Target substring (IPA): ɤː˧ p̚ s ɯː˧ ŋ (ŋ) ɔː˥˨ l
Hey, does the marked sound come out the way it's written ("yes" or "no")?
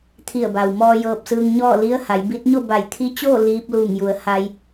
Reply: no